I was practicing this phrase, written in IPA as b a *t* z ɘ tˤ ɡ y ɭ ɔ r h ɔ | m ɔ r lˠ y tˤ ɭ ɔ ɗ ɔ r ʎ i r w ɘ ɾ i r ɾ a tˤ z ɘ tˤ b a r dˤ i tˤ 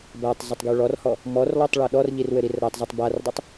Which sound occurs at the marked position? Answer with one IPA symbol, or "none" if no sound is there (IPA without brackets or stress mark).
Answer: tˤ